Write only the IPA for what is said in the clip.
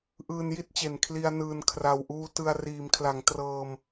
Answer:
ʔ ɯː˧ n j i˥˩ t̚ t͡ɕ e˨˩ n kʰ l i˧ a̯ n ɯː˨˩ n kʰ r a˨˩ w ʔ uː˧ t ɯ˧ a̯ r iː˩˦ m kʰ l a˩˦ ŋ t r ɤː˧ m

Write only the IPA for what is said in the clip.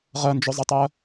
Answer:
ʁ ɜ n d͡ʒ ʊ zˤ ʌ tˤ ɜ

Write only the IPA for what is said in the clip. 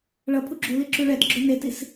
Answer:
ɭ ʌ pʰ u ɡ͡ǁ u l i ǁ u ɭ ɛ t ɡ͡ǁ o n e t i s

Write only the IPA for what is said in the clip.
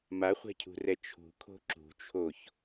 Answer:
m a χʷ ɛ̤ cʰ ṳ r ɛ t͡ʃʰ ṳ kʰ o̤ ǁ ṳ t͡ʃʰ o ç

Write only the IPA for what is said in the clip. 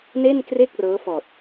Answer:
n e˥˩ n k r e˥˩ k̚ r ɤː˦˥ f ɔː˨˩ t̚

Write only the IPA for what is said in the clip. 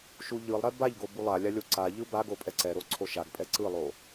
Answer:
ʃ u ʎ ɯ lˠ ɾ ɛ b a ʎ ɡ o b u lˠ a lʲ a lʲ o ǀ a ʎ ɯ b a ɡ o pʼ ɛ ǀ ɛ ɾ o ǀʰ o ʃ a ɡ pʼ ɛ ǀ ɯ lˠ o

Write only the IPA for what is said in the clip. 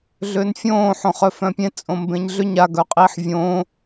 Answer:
ɮ ʏː n fʲ õː ħ õ χ œ f œ̃ pʲ ẽ t͡sʼ õ m b ẽ ɲ ɮ ʏ ɲ a ɡ œ qʼ iː ħ vʲ õː

